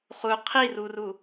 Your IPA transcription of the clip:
χu qʰiruru

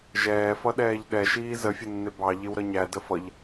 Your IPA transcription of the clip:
ʒɛːfʌ ɗɛːʎɗɛʃiː zəfʲənːɪ bɑ ʎɪwɾʌɲæ dəfʌʎ

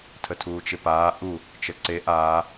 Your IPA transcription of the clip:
tʰətʰuːt͡ʃɪpaː ʔu | t͡ʃəǀe ʔaː

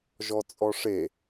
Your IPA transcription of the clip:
ʒɔt͡sʼɔʂe

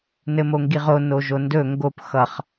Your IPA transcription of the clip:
nɘmoŋɡiʁo noʒondɵ ŋɡop xʌχ

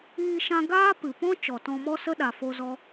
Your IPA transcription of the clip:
iː˧ʃã˧ ɡaː˦pɨ˨pɔ̃˦ t͡ʃɔ˨tɔ̃˧mɔ˦ sə˦ɗa˨fo˧zɔ˧

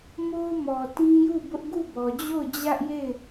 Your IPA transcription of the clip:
mo˦ʊ̯mɔ˨ tĩ˦ju˦˨bʊ˦ʔ ɡu˦˨bɔ˨d͡ʑo˦˨ʊ̯ d͡ʑä˦ʔje˦˨ɪ̯

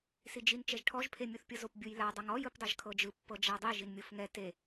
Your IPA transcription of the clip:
sid͡ʒin t͡ʃɛʒʈʰɔʒ pʰemʲuθpʲɤzop bʲujla dˤɤŋɔ jɯpdˤɛʒkʰɤd͡ʒɯ pːɤd͡ʒadˤi ʒinmʲofŋɛ te

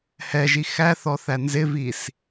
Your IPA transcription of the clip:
hɛʒi xæθɔθæ nzɪvis

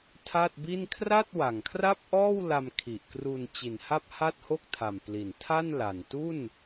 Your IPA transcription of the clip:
tʰa˥˩t̚bi˥˩n kʰra˥˩t̚ wa˨˩ŋkʰra˥˩p̚ʔɔː˥˩wla˧m kʰi˨˩ʔkru˧n t͡ɕi˨˩nha˥˩p̚ ha˥˩t̚ho˥˩k̚tʰa˨˩m pli˨˩n tʰa˥˩n la˨˩n tu˥˩n

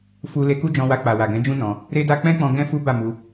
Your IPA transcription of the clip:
fu˧ le˧ku˦d͡ʒɔ̃˧wa˧ k͡pa˨wa˨ɡɛ̃˨˦d͡ʒũ˦ nɔ̃˧ | ɾe˦da˦ k͡pɛ̃˦k͡pɔ̃˧ ɡɛ̃˦fu˦ba˦˨ mu˧

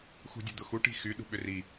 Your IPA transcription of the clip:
xṳdʲʊd̪ʊxu ʈi̤xy ɗṳɓʏri

